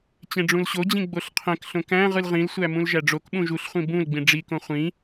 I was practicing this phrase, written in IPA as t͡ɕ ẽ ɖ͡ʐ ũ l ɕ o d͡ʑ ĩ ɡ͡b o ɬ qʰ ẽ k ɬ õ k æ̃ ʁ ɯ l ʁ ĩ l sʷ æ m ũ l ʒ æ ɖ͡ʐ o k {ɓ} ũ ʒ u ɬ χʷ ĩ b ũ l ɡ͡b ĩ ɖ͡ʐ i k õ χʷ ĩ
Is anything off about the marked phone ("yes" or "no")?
no